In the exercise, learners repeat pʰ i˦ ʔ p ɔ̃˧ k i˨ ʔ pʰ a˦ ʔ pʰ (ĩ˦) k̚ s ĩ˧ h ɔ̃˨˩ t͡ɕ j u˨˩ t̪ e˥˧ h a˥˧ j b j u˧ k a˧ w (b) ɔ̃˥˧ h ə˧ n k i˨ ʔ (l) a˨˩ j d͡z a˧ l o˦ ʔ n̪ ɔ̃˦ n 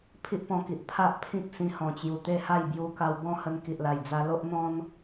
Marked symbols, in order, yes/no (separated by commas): yes, yes, yes